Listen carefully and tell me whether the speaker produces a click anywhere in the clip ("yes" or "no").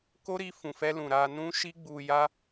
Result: no